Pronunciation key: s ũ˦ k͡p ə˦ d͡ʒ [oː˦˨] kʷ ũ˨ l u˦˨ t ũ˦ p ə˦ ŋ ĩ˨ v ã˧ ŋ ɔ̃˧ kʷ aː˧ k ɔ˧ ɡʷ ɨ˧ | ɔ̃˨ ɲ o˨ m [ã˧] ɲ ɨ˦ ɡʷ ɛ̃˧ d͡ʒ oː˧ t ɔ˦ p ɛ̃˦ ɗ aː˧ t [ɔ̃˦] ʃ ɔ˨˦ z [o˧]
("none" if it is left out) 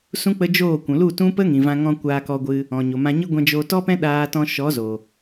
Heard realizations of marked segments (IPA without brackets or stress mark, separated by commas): oː˦˨, ã˧, ɔ̃˧, o˨